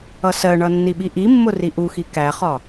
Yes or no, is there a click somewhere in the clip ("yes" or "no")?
no